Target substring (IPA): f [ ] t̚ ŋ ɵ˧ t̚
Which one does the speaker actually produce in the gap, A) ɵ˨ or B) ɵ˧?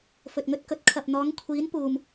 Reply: A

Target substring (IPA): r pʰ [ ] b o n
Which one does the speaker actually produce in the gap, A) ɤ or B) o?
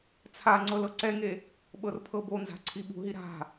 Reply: A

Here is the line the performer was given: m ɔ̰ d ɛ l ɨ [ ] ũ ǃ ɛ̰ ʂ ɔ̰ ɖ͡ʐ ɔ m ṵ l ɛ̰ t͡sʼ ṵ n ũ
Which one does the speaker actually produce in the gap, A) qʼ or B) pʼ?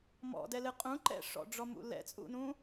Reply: A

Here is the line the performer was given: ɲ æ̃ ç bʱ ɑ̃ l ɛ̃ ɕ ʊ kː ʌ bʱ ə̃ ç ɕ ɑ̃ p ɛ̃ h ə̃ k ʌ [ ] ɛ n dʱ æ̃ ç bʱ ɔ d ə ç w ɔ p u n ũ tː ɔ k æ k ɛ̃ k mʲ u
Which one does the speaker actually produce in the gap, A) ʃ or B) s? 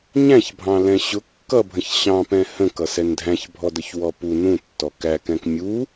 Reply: B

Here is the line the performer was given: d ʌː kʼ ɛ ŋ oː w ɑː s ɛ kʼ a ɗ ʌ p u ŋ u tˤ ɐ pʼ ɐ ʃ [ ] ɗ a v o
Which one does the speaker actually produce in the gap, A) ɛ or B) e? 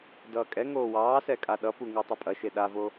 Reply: B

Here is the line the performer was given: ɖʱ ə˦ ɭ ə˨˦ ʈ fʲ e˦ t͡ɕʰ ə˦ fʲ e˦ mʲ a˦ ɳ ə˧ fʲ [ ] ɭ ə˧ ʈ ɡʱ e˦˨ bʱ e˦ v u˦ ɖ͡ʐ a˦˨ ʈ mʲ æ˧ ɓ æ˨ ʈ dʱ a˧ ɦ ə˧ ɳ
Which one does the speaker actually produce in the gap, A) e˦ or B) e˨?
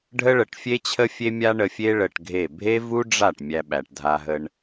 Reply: A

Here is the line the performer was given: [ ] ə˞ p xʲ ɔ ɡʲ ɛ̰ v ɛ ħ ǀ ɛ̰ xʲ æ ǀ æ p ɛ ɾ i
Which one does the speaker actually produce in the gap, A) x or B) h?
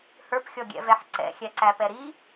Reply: B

